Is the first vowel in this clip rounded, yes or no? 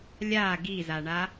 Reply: no